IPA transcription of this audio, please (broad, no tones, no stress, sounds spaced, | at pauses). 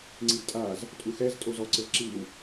ŋ͡ǀ i d tʼ a z | tʼ u x ɛ z tʼ o z ɔ ǀ ɘ v ǁ i w